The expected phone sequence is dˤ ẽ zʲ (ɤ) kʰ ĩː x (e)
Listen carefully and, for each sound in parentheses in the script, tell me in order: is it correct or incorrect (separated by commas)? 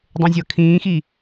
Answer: correct, incorrect